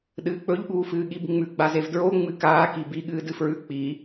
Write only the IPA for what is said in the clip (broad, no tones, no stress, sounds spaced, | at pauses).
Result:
ɗ ɨː k͡p ɵ ʎ ɠ uː f ɨː ɠ i b ŋ͡m ʉ ɡ͡b a z e v d ɹ o ŋ͡m ɨ k aː k i b i ɠ ɨː d ɨ f ɹ ʉ k͡p i